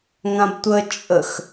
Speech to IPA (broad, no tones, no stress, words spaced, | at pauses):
ŋãbtʷə t͡ʃʼəx